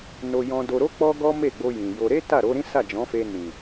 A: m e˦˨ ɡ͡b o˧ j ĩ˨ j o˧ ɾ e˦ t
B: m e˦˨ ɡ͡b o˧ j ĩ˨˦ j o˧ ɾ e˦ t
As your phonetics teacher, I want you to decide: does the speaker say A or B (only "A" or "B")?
A